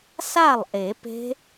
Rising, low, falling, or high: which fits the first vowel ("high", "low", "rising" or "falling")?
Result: falling